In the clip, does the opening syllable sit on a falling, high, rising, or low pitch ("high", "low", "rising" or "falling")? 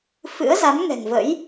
rising